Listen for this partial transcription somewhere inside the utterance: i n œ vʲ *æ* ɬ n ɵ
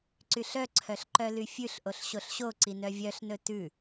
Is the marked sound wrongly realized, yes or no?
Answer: yes